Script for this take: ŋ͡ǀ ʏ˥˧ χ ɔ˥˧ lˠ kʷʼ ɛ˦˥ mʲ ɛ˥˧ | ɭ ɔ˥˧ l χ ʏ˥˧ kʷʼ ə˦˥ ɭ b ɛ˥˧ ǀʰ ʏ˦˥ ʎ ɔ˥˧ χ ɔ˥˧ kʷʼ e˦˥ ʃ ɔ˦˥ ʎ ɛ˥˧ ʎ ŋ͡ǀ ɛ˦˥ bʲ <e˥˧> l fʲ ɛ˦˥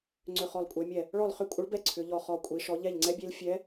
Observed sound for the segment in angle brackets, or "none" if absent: e˦˥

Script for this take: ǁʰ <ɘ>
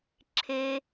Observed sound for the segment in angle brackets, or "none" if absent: e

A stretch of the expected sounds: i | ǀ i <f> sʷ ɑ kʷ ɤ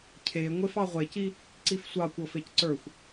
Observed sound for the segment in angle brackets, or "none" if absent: f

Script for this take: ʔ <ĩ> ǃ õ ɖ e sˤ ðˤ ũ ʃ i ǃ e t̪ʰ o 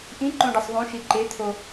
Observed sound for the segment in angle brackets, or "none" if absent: ĩ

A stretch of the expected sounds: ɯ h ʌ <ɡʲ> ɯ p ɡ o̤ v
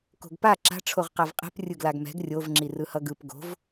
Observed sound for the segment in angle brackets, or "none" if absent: ɡ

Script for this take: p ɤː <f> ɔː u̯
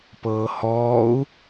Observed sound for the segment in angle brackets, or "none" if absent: h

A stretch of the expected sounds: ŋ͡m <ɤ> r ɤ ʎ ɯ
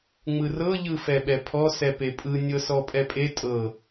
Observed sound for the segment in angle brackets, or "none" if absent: ɯ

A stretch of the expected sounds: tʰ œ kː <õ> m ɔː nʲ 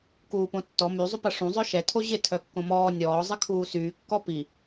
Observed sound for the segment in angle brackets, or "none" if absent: õ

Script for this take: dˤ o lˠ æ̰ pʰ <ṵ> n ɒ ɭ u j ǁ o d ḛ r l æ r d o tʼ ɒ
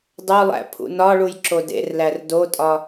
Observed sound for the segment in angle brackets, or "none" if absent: ṵ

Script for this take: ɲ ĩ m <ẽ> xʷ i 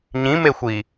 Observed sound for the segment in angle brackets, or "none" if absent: e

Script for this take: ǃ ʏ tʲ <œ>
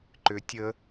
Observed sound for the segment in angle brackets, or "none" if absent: ə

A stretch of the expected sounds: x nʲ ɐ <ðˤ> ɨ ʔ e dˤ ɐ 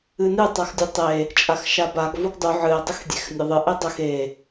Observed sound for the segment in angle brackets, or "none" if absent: ðˤ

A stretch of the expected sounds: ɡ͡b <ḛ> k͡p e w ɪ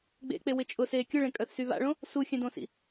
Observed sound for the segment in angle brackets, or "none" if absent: ḛ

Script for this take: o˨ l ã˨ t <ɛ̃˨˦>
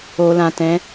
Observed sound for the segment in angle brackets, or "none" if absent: ɛ̃˨˦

